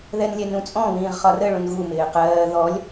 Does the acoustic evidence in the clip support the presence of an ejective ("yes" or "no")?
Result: yes